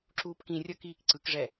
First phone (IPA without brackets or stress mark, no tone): ǁ